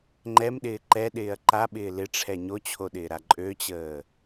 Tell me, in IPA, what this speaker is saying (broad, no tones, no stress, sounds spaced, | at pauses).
ŋ͡ǃ ɛ m ɗ ɪː ǃ ɛ ɗ ɪː ɐ̯ ǃ a ɓ ɪː l ɪ ʈ͡ʂʰ ɛ ɲ o t͡ɕʰ o ɗ ɪː ɾ a ǃʼ ø t͡ɕ əː